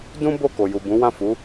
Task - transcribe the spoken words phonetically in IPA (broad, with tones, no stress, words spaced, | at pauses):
dũ˦ bo˦˨ko˨ju˨ bũ˨˦wã˦˨fu˨˦